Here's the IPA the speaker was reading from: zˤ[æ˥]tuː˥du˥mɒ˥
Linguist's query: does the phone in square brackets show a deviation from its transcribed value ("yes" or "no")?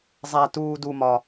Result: no